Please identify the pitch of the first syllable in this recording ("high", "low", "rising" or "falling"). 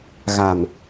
low